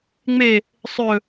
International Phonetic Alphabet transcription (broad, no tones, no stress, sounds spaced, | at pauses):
ŋ͡m e | sˤ ɵ